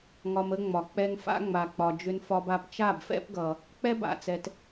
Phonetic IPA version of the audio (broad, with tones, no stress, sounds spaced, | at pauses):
ŋ ɒ˧ m ə˦ ŋ͡m ɒ˨ k͡p ɛ˧ ŋ f a̰˦ ŋ͡m a˨ k͡p ɒ˨ d͡ʒ ʏ˧ n f ɒ˧ b a˧ p t͡ʃ a˦˨ b f ɛ̰˦ p ɡ ʌ˨ | k͡p ɛ˦ b a̰˨ t͡s ɛ˨ t